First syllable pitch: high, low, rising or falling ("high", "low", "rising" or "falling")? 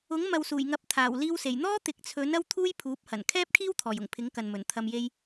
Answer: rising